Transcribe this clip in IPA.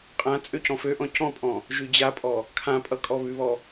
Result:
qʼ ã t͡sʼ ø c ɔ̃ f ø ʔ ɔ̃ c ɔ̃ pʼ ɔ̃ | ʒ ʉ d͡ʑ a pʼ ɔ | kʰ ã pʼ ʌ kʼ ɔ β ʉ β ɔ

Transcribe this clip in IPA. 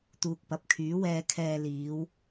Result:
t̪ uː˨ k̚ p ɐ˨˥ p̚ kʰ yː˨˥ w ɛː˧ kʰ ɛː˨ l iː˨˧ w

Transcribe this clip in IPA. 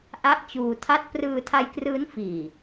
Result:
ʔ a˥˩ ʔ t͡ɕ uː˧ tʰ a˥˩ t̚ p r ɯː˧ tʰ a˧ j k r ɯː˦˥ n f iː˨˩

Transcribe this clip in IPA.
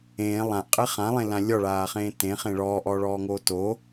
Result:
ẽː lˠ ã ʔ qʼ e χ ã lˠ ẽ l ã lʲ ɔ ɭ aː χ ẽː t ẽ χ ẽ ɭ ɔː ʔ ɔː ɭ ɔː ŋ oː t o

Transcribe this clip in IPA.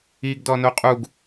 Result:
i ɡ d ɔ n o qʼ u ɡ

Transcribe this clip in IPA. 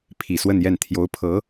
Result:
pʰ i˨˩ s w ə˥˧ n j ɛ˥˩ n t̪ʰ j o˧˥ ʊ̯ pʰ ɤ˧˥

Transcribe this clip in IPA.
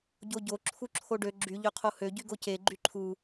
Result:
ɟ o ɟ o ǁʰ u ǁʰ o ɖ ø ɡ͡ǁ y ʎ ø qʰ o h ø ɟ y ɡ o c e ɡ͡ǃ y ǃʰ u

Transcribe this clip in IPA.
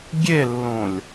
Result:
ɡʲ e lː õ lʲ

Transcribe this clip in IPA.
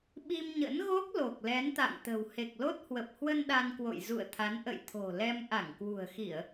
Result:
ɓ i˧ m ɲ ə̰˧˥ n ɣ o˦˥ k̚ l o˨˩ k̚ l ɛ˨˦ n t̪ a̰˧˨ ŋ t̪ ə̤˨˩ w h e˨˩ k̚ l o˦˥ t̚ h w ə˨˩ p̚ h w ə˧ n ɗ a˧ n k w o̰˧˨ j z ṵ˧˨ ə̯ t̪ʰ a˨˦ n ʔ ə̰˧˨ j t̪ʰ o̤˨˩ l ɛ˧ m ʔ a˧˩ ŋ k w ṳ˨˩ ə̯ x i˧˩˨ ə̯

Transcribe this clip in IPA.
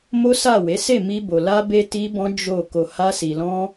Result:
m o˦ s a˦˨ w e˨˦ s e˦˨ m i˧ b o˨ l a˧ b e˧ t i˦ b ɔ̃˦ d͡ʒ o˦˨ k o˧ h a˦ s i˧ l ɔ̃˦

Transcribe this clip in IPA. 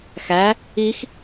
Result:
x æ | i x

